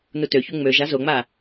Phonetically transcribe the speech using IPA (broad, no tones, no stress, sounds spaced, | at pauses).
n u t ø ç u ŋ͡m ø ʒ a z o ŋ͡m a